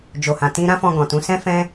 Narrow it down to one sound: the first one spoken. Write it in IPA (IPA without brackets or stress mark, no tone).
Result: d͡ʒ